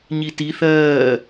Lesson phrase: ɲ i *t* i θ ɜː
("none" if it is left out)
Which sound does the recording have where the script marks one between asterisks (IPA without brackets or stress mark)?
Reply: t